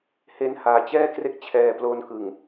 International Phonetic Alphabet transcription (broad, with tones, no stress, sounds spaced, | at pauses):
h e˧ n h aː˩˦ t͡ɕ ɛː˥˩ k r e˦˥ k̚ t͡ɕʰ ɛː˨˩ p l o˧ n k ɯ˨˩ ŋ